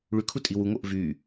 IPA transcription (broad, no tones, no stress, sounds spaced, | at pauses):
ɭ y kʰ u tʼ i w u ŋ o ʔ v y